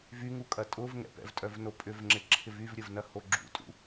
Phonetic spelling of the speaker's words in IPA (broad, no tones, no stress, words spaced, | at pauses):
vyŋukʼɐ tʼʊv ŋɛ̰pɛ̰vtʼœvno pʼʏvŋ͡ǁɪǁʰɪ vyvɾʲəvnɐho ɡ͡ǁṵtʼṵ